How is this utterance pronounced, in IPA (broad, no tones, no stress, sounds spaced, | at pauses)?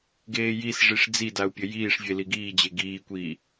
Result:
ɡ eː j i s ʐ i ʂ d͡z i d a u̯ pʲ ɘ j iː ʂ vʲ e l i ɡ iː d͡ʑ e ɡ iː kʷ iː